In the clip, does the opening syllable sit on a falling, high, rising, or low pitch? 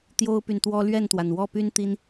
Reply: high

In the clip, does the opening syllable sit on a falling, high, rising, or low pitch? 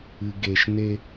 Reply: low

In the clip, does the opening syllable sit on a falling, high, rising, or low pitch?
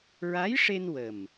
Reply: rising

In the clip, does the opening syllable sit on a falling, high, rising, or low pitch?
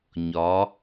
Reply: rising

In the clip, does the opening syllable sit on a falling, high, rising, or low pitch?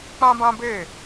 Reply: high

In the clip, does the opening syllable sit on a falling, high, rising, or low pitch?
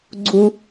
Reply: low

